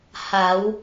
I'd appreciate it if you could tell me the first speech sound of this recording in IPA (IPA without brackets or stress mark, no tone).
h